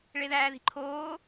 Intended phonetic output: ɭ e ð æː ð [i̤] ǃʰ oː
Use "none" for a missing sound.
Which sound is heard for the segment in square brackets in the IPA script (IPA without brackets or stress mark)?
i̤